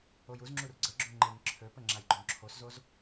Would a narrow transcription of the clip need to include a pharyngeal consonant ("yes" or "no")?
no